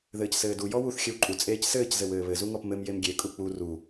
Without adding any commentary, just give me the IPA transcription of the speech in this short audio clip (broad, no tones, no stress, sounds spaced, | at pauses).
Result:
ð ɘː c s ɘː d u j ɔ w u θ xʲ ɘ w ǃʼ u t͡sʼ eː c s ɘː c z ɘ w ɘː β ɘ z u ŋ ɔ p m ɘ m j e m ɡʲ e kʼ u k͡p u r u